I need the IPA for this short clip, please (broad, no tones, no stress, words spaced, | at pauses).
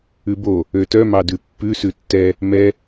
ʉbo | øtœ mɑdʉpːʉ sʉtːɛ | mɛ